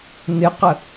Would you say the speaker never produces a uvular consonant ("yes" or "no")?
no